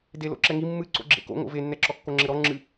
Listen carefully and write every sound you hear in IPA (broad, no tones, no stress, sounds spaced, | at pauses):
d e l o̰ ǁ ɛ ŋ i mː ɨ ǀ o̰ ɡ͡ǁ ḛ k o̰ ŋ o̰ v e nː ɛ ǁ ɔ kː o ŋ͡ǁ ɘ ɾ ɔ ŋ͡ǁ ɨ